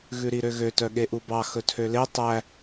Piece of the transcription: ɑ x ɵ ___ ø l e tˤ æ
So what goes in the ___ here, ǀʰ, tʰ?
tʰ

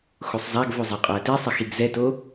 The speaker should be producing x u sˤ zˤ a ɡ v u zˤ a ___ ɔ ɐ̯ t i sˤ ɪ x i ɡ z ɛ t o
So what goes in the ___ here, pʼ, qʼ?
qʼ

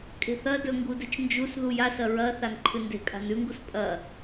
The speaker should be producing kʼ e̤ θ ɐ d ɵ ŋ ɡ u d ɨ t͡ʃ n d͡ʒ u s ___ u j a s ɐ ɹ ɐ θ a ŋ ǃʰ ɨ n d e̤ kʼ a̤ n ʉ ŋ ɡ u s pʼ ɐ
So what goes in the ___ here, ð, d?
ð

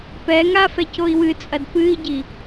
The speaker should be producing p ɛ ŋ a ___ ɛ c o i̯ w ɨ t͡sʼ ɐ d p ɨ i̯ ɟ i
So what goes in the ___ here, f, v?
f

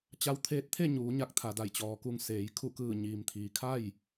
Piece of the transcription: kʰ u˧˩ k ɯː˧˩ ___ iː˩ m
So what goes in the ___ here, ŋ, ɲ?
ɲ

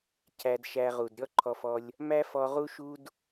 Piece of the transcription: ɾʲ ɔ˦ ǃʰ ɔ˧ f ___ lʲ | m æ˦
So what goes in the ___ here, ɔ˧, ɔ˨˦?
ɔ˧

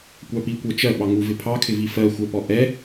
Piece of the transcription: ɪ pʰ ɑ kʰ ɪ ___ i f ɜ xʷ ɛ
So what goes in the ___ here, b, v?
v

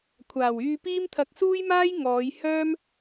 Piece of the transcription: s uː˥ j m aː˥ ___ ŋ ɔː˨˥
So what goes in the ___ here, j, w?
j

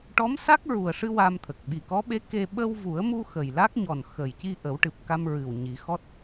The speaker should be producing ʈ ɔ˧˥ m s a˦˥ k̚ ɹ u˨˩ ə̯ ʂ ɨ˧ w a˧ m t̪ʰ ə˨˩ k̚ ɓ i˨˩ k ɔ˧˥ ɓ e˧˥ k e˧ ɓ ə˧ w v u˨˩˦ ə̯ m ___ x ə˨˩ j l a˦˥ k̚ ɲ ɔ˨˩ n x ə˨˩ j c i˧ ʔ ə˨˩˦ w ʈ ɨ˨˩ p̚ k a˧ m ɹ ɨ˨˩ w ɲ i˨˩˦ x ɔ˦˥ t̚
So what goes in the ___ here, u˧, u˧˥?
u˧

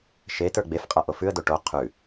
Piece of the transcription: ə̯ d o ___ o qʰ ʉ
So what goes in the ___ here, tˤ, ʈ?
ʈ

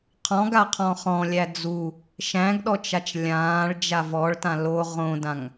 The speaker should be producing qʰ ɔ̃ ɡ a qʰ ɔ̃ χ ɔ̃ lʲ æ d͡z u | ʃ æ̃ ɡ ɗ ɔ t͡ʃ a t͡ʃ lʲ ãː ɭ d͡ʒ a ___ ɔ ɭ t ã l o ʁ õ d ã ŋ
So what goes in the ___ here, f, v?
v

